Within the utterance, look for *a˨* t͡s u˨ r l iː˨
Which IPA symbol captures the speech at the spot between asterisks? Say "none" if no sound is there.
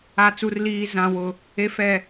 a˨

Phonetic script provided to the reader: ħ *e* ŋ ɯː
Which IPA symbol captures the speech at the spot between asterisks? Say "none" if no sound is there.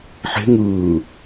e̤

